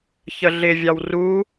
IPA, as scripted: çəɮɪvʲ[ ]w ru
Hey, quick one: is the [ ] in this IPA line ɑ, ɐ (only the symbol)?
ɑ